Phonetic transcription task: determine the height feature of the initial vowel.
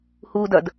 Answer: high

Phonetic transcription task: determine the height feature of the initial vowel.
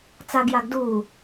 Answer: low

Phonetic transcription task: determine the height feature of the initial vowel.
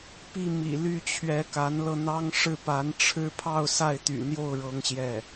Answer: high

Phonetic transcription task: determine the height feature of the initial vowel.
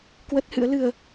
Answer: mid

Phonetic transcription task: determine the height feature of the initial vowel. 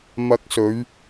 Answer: low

